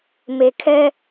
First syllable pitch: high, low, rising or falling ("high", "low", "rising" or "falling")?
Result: low